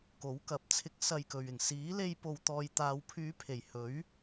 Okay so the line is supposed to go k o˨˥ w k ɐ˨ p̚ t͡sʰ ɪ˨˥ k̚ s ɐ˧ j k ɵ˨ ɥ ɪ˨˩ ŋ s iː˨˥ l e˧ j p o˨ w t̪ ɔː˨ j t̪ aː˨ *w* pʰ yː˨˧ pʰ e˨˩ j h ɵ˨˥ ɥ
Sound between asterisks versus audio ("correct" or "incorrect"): correct